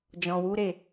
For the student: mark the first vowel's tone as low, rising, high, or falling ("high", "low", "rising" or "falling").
low